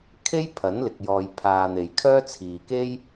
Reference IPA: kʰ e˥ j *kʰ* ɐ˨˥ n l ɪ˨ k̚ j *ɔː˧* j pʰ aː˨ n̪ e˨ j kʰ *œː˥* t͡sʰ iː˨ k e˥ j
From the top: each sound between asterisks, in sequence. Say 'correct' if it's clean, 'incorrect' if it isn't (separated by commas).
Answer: incorrect, incorrect, correct